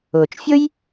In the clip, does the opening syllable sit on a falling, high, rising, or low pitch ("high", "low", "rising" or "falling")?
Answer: low